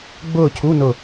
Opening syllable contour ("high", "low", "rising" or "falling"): falling